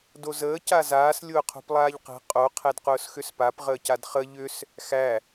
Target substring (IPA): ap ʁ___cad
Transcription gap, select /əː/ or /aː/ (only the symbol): əː